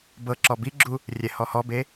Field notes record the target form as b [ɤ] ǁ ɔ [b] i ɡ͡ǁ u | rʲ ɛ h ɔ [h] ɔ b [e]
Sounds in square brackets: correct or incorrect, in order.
correct, correct, correct, correct

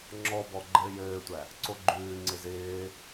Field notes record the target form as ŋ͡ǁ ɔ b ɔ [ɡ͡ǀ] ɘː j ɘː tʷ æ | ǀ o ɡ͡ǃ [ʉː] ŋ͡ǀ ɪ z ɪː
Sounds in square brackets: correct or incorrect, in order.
incorrect: ɡ͡ǃ, correct

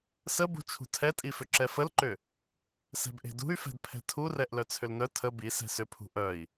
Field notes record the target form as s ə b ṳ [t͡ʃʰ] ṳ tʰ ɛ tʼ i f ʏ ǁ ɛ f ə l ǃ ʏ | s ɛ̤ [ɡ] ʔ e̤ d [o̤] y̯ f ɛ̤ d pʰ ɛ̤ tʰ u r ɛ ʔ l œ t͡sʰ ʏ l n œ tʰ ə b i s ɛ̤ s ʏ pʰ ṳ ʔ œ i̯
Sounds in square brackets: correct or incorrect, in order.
correct, incorrect: b, incorrect: ṳ

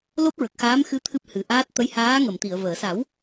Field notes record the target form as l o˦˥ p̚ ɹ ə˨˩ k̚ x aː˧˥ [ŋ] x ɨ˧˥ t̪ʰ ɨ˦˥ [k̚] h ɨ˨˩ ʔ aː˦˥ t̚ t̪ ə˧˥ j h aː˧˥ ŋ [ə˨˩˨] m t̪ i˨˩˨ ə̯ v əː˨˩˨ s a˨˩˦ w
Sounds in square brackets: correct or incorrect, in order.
incorrect: m, incorrect: p̚, correct

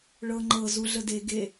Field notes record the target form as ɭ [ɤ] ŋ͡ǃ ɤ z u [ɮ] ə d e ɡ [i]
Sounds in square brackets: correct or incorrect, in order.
correct, correct, incorrect: e

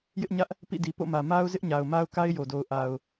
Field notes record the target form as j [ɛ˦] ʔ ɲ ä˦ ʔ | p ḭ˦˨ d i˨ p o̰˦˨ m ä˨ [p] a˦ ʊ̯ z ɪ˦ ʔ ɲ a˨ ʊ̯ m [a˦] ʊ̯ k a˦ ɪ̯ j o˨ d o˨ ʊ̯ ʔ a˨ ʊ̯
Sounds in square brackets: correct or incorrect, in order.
incorrect: ɪ˦, incorrect: m, correct

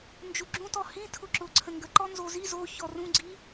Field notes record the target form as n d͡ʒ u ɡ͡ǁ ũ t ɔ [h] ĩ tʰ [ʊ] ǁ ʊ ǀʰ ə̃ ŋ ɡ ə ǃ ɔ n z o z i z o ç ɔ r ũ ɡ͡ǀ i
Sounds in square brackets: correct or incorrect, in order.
correct, correct

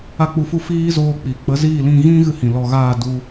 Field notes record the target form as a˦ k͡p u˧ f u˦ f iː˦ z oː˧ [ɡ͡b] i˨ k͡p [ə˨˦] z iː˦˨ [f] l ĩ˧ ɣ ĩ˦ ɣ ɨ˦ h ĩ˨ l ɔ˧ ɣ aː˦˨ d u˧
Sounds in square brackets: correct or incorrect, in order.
incorrect: k͡p, correct, incorrect: none

